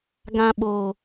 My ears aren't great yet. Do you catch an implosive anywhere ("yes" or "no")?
yes